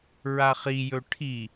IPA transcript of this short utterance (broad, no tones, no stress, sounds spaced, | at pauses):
ɹ a χ i j ɵ ʈʰ i